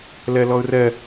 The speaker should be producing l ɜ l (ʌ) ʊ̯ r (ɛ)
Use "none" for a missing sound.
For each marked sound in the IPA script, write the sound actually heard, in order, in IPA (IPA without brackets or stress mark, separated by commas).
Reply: ɔ, ɜ